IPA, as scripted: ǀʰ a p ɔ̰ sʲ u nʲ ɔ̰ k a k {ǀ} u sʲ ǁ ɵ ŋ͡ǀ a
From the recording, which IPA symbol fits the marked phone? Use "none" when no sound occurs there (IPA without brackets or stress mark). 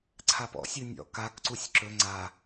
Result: ǀ